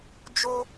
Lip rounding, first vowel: rounded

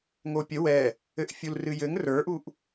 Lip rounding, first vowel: rounded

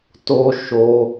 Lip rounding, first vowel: rounded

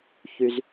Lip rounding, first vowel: rounded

